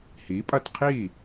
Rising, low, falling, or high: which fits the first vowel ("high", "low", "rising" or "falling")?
rising